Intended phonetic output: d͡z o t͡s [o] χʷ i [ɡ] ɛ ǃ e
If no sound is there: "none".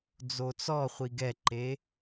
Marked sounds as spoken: ɔ, ɡ

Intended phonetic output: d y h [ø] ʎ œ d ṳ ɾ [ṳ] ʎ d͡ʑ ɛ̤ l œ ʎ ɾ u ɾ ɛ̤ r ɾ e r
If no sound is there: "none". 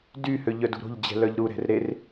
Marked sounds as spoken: ø, o̤

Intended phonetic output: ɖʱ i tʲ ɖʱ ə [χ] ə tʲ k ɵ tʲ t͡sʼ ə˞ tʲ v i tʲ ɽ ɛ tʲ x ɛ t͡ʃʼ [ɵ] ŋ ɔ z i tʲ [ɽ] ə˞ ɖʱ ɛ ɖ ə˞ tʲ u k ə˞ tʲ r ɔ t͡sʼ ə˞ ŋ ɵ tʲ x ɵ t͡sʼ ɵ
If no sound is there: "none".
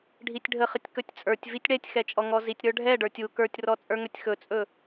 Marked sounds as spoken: χ, ɔ, ɾ

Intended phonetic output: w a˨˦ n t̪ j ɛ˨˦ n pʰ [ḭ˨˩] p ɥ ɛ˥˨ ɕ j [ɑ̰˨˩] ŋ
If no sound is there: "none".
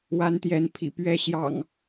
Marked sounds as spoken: ḭ˨˩, ɑ̰˨˩

